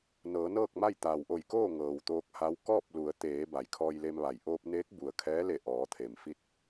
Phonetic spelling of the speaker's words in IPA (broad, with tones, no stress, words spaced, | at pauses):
nɤː˩˧nɤː˥˨k̚ma˥˨j t̪aː˩wʔo˧˩jkoː˥˨ ŋɤː˩wt̪oː˧k̚ha˧˥w kɔː˥˨p̚lu˩˧ə̯ t̪eː˩˧ ba˩jkʰɔː˧jle˧mʋa˩j ʔoː˧p̚neː˧˥k̚ bu˩ə̯kʰɛː˧˥le˧˩ ʔɔː˩˧t̪ʰe˩mfi˥˨t̚